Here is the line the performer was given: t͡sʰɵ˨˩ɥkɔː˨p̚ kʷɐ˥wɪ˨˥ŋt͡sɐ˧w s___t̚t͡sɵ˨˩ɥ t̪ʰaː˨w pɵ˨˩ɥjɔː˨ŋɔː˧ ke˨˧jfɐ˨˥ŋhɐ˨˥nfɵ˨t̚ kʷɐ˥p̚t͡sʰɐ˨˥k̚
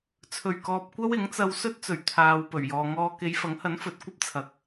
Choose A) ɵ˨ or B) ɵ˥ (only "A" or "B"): B